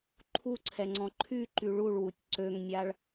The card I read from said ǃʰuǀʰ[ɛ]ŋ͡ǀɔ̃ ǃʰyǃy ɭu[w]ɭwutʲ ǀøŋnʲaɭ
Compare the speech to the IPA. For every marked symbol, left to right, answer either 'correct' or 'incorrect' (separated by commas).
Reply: correct, incorrect